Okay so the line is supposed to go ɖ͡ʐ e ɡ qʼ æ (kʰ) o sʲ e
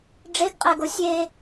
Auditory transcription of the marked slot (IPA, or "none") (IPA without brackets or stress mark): ɡ